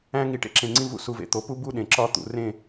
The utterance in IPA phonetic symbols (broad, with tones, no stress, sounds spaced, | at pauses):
æ̃˦ ŋ i˧ ʈ ḛ˦ ǁ ẽ˧ ŋ͡ǀ ĩ˦ v ṵ˦ s u˧ v ḛ˧ t̪ o˨˦ p u˦ b u˦ ɗ ẽ˨ ǁ ɒ˦˨ t̪ ṵ˨ r ẽ˦˨